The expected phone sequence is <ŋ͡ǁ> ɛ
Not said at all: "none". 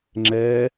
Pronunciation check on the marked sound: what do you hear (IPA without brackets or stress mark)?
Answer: ŋ͡ǁ